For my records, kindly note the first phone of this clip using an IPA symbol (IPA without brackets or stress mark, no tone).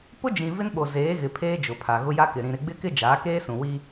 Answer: p